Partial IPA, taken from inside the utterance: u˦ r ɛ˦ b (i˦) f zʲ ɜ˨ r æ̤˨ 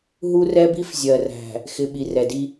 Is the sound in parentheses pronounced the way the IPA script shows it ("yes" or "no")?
yes